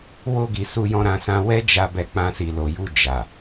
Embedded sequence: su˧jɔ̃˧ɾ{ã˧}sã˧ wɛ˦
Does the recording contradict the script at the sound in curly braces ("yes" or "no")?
no